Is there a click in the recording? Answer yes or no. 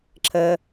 yes